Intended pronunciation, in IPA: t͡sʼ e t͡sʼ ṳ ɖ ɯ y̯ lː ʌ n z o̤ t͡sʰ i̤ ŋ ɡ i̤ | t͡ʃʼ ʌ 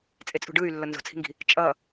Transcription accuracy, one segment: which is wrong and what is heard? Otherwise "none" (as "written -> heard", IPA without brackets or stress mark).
none